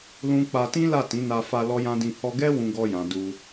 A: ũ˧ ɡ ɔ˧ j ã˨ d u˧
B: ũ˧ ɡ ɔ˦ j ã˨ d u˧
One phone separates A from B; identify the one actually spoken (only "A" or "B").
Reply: A